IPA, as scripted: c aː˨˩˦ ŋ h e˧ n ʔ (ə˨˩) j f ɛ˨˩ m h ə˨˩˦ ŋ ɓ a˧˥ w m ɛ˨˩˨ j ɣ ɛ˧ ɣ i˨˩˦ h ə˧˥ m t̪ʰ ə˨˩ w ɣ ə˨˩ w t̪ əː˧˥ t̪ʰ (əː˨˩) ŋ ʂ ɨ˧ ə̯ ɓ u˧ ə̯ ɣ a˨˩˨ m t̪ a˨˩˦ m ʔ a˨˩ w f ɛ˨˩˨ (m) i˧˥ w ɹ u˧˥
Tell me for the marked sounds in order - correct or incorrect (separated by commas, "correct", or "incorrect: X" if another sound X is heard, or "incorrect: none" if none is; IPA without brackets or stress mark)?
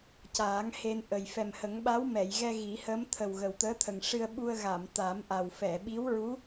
correct, incorrect: ə˨˩, incorrect: ɓ